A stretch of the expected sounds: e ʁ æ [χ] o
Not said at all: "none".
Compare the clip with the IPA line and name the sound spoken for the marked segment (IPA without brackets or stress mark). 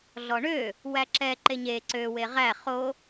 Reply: χ